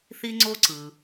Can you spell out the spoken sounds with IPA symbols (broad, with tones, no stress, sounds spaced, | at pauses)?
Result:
θ i˥ ŋ͡ǀ o˥ ǀ ɯ˩